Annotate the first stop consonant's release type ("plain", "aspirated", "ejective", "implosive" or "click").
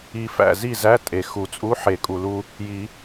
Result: ejective